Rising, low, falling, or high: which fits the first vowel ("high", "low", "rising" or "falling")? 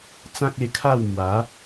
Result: high